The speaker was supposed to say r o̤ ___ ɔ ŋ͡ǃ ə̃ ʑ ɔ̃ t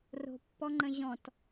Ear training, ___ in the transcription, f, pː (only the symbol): pː